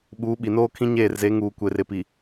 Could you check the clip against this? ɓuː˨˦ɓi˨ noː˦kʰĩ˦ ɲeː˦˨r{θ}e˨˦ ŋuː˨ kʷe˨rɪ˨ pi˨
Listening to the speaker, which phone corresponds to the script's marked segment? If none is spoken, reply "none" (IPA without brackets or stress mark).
z